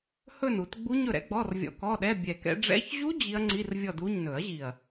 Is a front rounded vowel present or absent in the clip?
absent